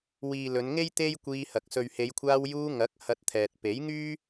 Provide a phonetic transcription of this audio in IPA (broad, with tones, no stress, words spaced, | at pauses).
wiː˨ lɵ˨˧nŋe˥j t̪e˥jkʷiː˧hɐ˨k̚ sɵ˨ɥhe˨˧jkʷʰaː˧wjuː˧ ŋɐ˨˥k̚ hɐ˧t̚t̪ʰɛː˨t̚ pe˨˥jŋyː˥